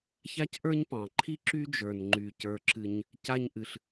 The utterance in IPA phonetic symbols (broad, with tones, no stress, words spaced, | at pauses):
ça˥cʔə˞˥ɲpɑ̃˩ǃʰi˥ ǁy˥d͡ʒə˞˩n ŋ͡ǃy˩cə˞˩ǁɨ˩ɲ | ca˥ɲ ʔɨ˩ɬ